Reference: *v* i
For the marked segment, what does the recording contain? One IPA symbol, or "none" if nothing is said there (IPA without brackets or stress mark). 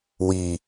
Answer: w